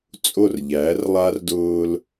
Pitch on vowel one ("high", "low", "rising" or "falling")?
falling